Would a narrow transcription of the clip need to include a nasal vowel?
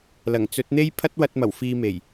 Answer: no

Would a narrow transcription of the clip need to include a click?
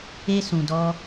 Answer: no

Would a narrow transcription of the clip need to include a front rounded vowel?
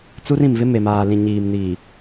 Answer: no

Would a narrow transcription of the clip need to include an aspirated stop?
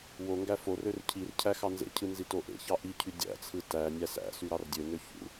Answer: yes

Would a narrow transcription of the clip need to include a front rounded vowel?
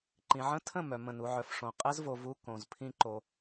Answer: yes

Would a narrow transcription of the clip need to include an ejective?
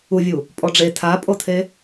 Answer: yes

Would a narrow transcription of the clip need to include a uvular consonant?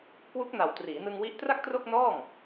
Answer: no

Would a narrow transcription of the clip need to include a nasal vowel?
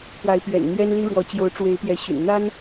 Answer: no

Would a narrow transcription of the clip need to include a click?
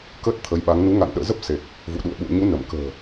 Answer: no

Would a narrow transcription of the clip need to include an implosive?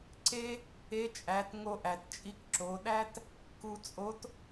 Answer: yes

